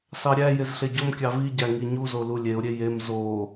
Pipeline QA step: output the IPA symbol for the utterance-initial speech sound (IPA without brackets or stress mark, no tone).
s